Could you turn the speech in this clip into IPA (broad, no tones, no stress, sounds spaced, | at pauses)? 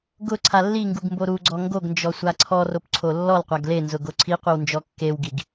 ɡ ʊ ǀʰ a lː i ŋ ɡ u ɡ m b o ɾ u ɡ͡ǀ ɔ ŋ ɡ o ɡ n d͡ʒ ɔ sʷ a ǀʰ ɔ r o p ǀʰ o lː ɔ l qʷ a ɡ l e n z ʊ ɡ o ǀʰ i qʷ i w n d͡ʒ ɔ kː e w ɡ i ɡ